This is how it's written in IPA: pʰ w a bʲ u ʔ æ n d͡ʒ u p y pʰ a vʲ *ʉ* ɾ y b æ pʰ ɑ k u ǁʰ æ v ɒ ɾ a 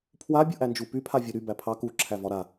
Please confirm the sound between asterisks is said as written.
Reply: no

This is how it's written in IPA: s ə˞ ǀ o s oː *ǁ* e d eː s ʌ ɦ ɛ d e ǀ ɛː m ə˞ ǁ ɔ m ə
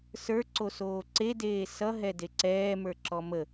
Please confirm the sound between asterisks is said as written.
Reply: no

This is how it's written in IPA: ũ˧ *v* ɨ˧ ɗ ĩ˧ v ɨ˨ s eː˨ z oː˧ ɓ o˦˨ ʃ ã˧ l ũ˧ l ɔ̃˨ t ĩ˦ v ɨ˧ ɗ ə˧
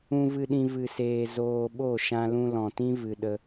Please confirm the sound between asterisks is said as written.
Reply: yes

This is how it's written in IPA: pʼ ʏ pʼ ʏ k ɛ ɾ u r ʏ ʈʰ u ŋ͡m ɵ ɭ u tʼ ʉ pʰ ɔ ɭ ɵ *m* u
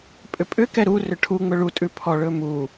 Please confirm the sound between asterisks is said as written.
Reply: yes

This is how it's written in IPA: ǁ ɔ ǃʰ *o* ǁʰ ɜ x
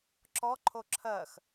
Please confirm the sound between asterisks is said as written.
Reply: yes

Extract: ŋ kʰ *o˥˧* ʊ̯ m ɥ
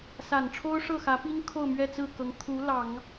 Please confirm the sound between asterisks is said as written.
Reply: yes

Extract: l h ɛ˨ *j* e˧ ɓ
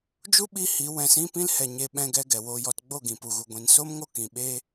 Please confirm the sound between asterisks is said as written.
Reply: no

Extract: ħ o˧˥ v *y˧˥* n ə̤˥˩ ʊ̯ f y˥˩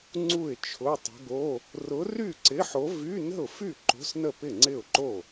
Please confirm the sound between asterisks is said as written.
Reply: no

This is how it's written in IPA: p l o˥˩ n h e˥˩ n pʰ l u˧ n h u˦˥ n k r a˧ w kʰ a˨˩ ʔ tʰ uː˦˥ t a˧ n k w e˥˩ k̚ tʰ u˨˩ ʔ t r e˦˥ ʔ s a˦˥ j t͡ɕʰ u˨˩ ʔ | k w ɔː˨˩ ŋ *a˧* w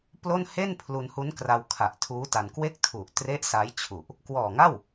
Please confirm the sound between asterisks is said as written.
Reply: no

